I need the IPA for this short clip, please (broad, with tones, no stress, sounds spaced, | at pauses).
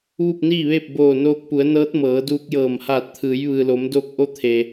ʋ u˥˨ p̚ n iː˥˨ ʋ eː˥˨ p̚ b oː˧˩ n oː˧ k̚ p u˩˧ ə̯ n ɤː˧˥ t̚ m ɤː˩˧ d uː˧ k̚ j ɤː˧˩ m h aː˧˩ t̚ t̪ʰ ɯː˩˧ j ʋ ɯː˩ l o˩˧ m d oː˧ k̚ ʔ o˧˥ t̪ʰ eː˩